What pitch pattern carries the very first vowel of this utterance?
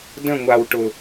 falling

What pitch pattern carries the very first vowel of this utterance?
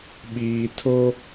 low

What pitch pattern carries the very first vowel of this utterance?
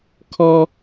high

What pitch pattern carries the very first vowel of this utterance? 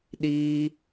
high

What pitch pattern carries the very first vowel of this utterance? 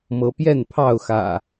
rising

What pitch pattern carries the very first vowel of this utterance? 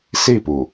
falling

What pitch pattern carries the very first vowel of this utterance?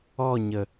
falling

